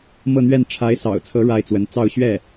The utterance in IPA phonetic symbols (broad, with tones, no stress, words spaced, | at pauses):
mɤ˥˧n̪ɥɛ˥˩n ʈ͡ʂʰa˧˥ɪ̯sɑ̰˨˩ʊ̯t͡sʰɤ˧˥ ɻa˥˩ɪ̯t͡swə˧˥n t͡sɑ˥˧ʊ̯ɕɥɛ˥˩